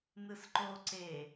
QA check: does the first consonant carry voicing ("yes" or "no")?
yes